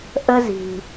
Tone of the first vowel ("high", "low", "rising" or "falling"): high